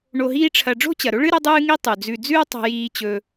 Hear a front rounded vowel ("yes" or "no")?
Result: no